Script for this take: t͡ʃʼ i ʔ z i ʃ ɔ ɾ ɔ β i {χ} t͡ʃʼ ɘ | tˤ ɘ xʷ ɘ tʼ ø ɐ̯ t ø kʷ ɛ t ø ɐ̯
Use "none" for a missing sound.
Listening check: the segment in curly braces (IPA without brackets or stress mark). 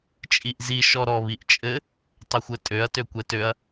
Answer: ʔ